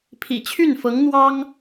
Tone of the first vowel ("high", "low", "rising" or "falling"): low